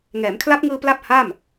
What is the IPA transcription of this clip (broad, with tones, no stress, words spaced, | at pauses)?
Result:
ŋɛː˩˦mkʰla˦˥p̚ŋɯː˧ pla˥˩p̚ha˥˩m